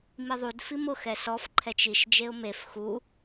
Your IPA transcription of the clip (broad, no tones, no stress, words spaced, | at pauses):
miðˤud fimʊ xɛsɔf ǃʰɛt͡ʃiʃ d͡ʒeʊ̯mef xu